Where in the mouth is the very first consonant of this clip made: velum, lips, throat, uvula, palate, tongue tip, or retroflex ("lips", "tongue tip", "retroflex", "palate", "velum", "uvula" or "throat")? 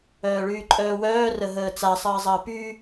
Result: retroflex